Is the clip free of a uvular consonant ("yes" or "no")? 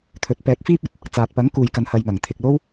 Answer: yes